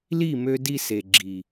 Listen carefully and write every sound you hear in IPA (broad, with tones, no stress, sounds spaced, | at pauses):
l i˦˨ m ø˧ d i˧ s e˨ ɡ͡ǁ i˨